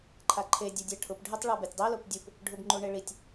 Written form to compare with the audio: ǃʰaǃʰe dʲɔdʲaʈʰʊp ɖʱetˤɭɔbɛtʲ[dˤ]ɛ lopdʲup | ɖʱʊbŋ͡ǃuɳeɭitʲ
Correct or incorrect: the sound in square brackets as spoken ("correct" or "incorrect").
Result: correct